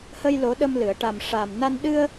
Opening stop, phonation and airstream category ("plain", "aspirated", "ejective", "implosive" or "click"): implosive